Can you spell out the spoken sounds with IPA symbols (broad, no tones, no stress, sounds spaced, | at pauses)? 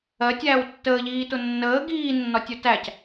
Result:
ɜ tʲ æː w tː əː ʎ iː t ʊ nː əː ɡ iː nː ɒ tʲ ʊ t æ c